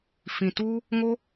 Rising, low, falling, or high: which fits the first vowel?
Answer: low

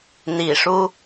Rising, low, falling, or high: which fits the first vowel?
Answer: low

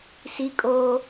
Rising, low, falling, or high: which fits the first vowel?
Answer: high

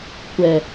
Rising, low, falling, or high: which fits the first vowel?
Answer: low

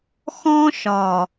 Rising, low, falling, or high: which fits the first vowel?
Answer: high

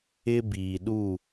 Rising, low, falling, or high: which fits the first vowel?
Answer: high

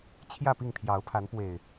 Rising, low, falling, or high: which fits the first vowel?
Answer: falling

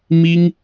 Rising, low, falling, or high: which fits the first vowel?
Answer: high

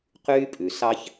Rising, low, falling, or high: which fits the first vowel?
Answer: high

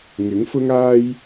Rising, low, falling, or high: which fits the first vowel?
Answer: rising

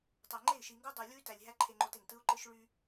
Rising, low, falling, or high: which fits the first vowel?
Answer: low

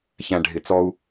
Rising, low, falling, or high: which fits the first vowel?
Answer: low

